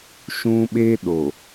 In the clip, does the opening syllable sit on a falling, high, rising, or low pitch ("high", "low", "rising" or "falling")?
high